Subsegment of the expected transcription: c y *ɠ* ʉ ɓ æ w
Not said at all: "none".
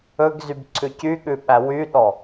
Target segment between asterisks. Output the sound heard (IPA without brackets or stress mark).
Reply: ɠ